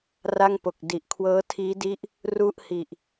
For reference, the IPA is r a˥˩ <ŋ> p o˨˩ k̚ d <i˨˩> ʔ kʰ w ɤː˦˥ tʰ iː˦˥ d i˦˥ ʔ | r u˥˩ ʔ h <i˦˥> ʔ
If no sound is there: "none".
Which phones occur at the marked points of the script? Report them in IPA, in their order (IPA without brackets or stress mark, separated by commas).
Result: ŋ, i˨˩, i˨˩